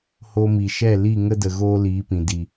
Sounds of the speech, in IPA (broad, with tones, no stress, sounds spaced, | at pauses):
h o˧ m i˨ ʃ ɛ˦˨ l i˦˨ ŋ ə˦ d ə˨ ɣ oː˦ l iː˨˦ p ĩ˨ d i˨